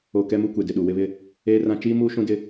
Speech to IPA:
o˨ k ɛ˦ m u˦ kʷ e˨ d ɪ˨ ɗ u˨ w ɪ˦ β ɪ˦ | eː˦ r ã˦ t͡ʃ iː˦ m uː˦ ʃ ũ˦ d ɪ˦

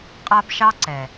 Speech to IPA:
qʼ a˦ b ʃ ɑ˦ ǀ ɛ˨

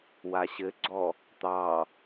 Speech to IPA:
w a ɕ ɘ ɡ͡ǀ ɔ | t̪ ɑ

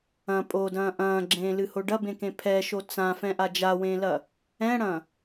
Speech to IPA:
ɐ̃ pʼ o d ɐ̃ː ʔ ɐ̃ː ɡ͡ǁ ẽː l ɨ h o ɖ ɐ b ẽ k ẽ pʰ ɛ ʃ o t͡s ã f ɛ̃ ʔ a d͡ʒ a w ẽː l ɐ | ɛ̃ ɽ ɐ̃

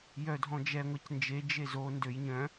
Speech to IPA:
j œ dʱ ɔ̃ d͡ʒ ɛ ŋʷ ɛ c n d͡ʒ e d͡ʒ e z o n d ø j ɲ œ̃

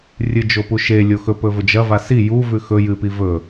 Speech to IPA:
rʲ ɨ d͡ʒ o p u ʃ e lʲ o x ɵ p ɵ v ɵ d͡ʒ ɐ v a s i j u v ʉ x ɵ j ɨ p i v ɵ

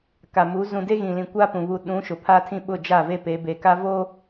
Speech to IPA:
k a˨ m u˨˦ z ũ˨ d e˦ ɣ ĩ˨ l ĩ˨ kʷ a˦ p ũ˨ β u˨ ɗ ũ˨˦ ʃ ʊ˨ pʰ a˦ tʰ ĩ˦ ɓ ʊ˦˨ d͡ʒ a˦˨ v e˦ p e˨˦ b e˨ k a˦ v oː˦

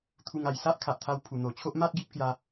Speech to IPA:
t̪ʰ u˧ ŋ a˨˩ j s a˦ ʔ kʰ a˨ ʔ t̪ʰ a˧ w pʰ u˨˩ n̪ o˨˩ t͡ɕʰ o˦ ʔ m a˦ t̚ ɡ i˦ p̚ k j a˧

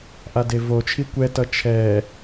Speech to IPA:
ʔ a d e v o t͡ʃʰ i kʷ ɛ t ʌ t͡ʃʰ ɛ

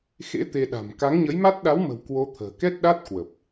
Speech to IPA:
x ḛ˧˥ t̪ e˧ ɗ a̤˨˩ m k a˨˦ ŋ ɲ ə˨˦ j m a˦˥ t̚ ɗ a˨˦ w m ə̤˨˩ w k w o˧ t̪ʰ ə̤ː˨˩ k ɛ˦˥ t̚ ɗ a˦˥ t̚ k w ə˨˩ p̚

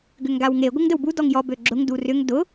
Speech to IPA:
ɡ ʏ ŋ ɡ a w ŋ e ɡʷ ə ŋ d ə w b u d ɔ ŋ j ɔ b ø ɡ͡ǁ ʊ ŋ d u r ʏ ŋ d ʊ

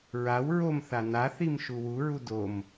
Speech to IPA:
ɹ a w ɹ o m θ a n a θ i m ʃ u w u ɹ u d o m

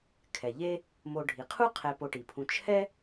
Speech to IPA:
kʰ ɛ˩ ʎ e˥ | m o˨ ɖʱ i˩ qʰ u˥ qʰ ɛ˨ p o˨ ʈ i˩ pʰ ũ˨ t͡ʃʰ ɛ˥

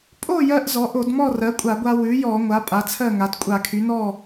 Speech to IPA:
pʼ o˥˨ j ɜ˧ ʔ z ɔ˩˥ ʔ o˧˩˧ d m ɔ˥˨ r ɜ˩˥ kʷʼ a˧˩˧ ɡʷ a˧ w ʉ˩˥ j ɔ˧˩˧ ŋʷ a˩˥ pʼ a˩˥ t͡sʰ ɜ˥˨ ŋ a˩˥ d kʷʼ a˧˩˧ kʰ y˩˥ n ɔ˥˨

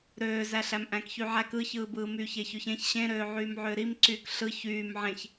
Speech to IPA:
ɾ øː z æ ɬ æ m ʔ æ̃ k ç y ʕ æ k ɯ ç ɯː b ɯː m yː ç e ç ø ç ẽ ç ɕ ẽ ɾ øː ʕ yː m ʕ øː ɾ i m ǀ yː k ɬ ɯ ç yː m ʕ ẽ ç

